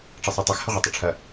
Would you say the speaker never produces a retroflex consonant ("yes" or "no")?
no